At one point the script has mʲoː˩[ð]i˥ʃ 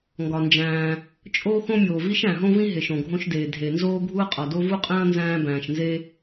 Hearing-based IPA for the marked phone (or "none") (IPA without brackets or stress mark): v